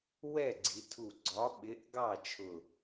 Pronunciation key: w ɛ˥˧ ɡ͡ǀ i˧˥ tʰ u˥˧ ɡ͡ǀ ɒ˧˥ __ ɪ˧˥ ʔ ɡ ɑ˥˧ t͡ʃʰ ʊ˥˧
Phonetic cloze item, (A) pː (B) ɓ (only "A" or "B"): B